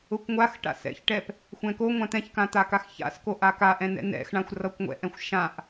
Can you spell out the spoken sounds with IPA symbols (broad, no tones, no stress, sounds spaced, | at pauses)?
ʊ kʷ ŋʷ a x ʈ a̰ s ɛ̰ ç ʈ ɛ p | xʷ ɛ̃ k o ŋʷ ã t̪ ɛ̃ ç k ã t̪ a k a x ç a̰ s k o ʔ a k a ʔ ɛ̃ n ɛ̰ n ɛ̰ x ɳ ã xʷ r ʌ kʷ ŋʷ ɛ̰ ʔ ɛ̃ xʷ ʃ ã ʔ